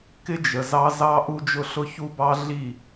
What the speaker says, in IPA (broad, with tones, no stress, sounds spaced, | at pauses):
k ɪ˦ d͡ʒ ə˨ z ɑ˦ z ɑ˦ ʔ u˦ d͡ʒ ʊ˦ ɬ ʊ˦ ç u˦ b ɑ˦ ɮ i˦˨